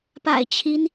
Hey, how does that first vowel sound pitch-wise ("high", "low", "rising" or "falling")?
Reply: low